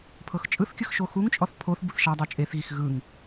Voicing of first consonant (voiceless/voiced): voiceless